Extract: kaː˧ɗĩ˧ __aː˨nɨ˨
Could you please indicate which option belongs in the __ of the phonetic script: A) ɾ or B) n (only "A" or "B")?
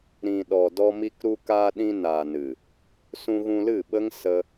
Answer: B